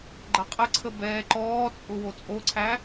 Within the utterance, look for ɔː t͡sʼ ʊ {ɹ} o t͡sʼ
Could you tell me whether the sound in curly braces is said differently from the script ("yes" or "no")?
yes